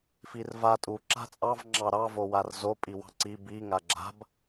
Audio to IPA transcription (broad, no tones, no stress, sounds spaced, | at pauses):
f i r v a tʼ u ǁ a̤ t͡sʼ ɑ v ŋ͡ǁ ɑ ɾ ɑ v o w a r z o pʼ i w ɑ̤ ǀ i b i ŋ a ɡ͡ǁ a̤ b